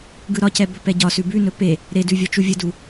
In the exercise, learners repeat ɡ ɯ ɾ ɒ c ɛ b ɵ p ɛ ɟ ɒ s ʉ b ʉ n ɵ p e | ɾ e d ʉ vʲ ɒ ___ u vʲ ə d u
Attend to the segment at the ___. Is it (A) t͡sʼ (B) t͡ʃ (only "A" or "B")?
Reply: B